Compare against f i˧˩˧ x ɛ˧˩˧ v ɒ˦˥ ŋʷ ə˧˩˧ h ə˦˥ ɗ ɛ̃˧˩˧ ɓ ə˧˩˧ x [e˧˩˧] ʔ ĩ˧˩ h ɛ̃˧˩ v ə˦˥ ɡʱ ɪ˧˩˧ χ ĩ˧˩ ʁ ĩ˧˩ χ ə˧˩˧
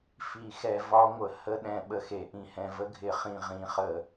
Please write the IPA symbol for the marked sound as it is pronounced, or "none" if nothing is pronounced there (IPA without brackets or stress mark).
e˧˩˧